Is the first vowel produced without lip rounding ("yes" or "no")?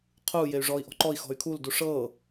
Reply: no